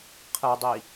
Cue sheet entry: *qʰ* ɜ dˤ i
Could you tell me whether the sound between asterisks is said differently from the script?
no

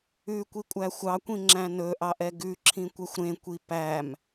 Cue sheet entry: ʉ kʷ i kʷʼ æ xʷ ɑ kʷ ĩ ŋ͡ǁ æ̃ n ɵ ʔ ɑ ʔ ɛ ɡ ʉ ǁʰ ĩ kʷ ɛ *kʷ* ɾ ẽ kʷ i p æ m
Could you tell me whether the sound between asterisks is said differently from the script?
yes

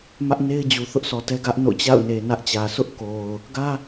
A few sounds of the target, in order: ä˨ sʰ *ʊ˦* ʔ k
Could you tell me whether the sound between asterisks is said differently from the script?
no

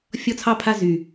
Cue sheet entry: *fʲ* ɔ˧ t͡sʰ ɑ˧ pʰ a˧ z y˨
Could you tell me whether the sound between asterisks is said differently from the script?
no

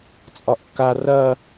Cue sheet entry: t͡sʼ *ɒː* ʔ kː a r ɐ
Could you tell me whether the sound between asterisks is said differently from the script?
yes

